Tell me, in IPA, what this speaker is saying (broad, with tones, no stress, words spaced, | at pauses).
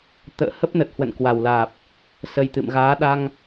t̪ə̰ː˧˨hə˦˥p̚nə˨˩t̚ hwə̰˧˨nkwa˨˩wlaː˨˩p̚ | sə˨˩j t̪ɨ̰˧˨mɣaː˨˦ ɗa˧ŋ